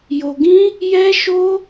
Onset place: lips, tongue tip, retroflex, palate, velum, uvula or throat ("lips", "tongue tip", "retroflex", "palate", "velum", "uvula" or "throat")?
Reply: palate